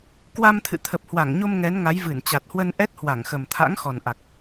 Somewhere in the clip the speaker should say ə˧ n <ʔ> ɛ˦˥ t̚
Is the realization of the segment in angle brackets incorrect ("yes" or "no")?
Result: no